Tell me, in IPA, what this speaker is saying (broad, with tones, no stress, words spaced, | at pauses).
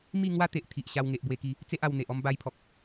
mi˥˧ ŋwa˦t̪e˨ʔ t̪ʰi˨ʔ ɕa˧wŋe˨ʔbwe˧ki˧ | t͡se˦ʔa˧wn̪e˨ʔ ɔ˧mba˧jpʰɔ˨k̚